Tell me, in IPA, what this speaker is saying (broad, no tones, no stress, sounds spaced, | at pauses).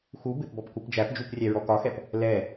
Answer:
x u b ɪ p b ɔ p k u p d͡ʒ æ p d͡ʒ u p rʲ æ ɹ ɔ k ɒ x ɛ p | l ɛ